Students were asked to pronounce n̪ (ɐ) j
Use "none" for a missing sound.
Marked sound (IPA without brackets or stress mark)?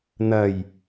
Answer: ɐ